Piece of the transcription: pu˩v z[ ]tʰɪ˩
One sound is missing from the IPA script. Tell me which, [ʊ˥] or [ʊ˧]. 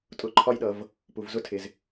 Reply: ʊ˥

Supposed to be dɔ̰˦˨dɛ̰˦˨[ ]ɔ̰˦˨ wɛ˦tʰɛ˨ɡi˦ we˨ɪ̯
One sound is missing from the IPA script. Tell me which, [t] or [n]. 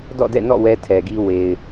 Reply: n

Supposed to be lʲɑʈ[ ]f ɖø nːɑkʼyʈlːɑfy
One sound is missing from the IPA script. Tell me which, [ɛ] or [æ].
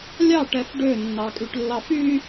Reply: ɛ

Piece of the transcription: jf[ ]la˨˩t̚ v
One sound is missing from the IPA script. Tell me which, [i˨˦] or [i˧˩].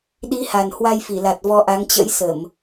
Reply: i˧˩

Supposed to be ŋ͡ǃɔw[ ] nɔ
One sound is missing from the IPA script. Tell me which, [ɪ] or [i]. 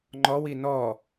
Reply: i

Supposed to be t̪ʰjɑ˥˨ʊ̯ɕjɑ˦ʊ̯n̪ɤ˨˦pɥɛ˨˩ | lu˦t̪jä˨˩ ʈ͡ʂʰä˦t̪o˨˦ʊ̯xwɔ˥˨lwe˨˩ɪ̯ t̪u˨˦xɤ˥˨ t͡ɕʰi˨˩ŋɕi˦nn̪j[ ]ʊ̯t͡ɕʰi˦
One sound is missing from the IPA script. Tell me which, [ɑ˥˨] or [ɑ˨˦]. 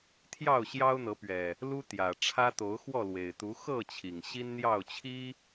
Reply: ɑ˥˨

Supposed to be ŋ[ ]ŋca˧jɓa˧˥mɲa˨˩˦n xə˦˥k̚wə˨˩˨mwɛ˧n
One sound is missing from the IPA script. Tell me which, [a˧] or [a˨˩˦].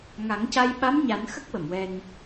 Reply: a˨˩˦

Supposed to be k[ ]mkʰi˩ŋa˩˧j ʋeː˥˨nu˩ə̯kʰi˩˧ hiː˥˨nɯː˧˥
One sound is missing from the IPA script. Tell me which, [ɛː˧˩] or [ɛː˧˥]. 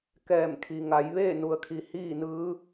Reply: ɛː˧˩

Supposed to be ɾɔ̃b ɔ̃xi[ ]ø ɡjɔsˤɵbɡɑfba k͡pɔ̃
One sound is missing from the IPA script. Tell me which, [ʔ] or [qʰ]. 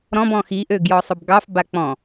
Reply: ʔ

